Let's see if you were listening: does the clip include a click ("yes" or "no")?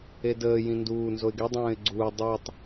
yes